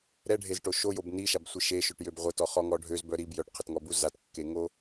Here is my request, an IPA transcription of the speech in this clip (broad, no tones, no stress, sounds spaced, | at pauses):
ɾ ɛ ɖʱ e z ʈ o ʃ o j o b n i ʃ a b sʷ i ʃ e ʃ ø ʈ j ø b ʁʷ ə t ɔ χ ɔ ŋ ɔ ɖʱ ø z b œ ɾ i b j œ ʈ qʰ ə t ŋ ɔ b u z a t kː e ŋ o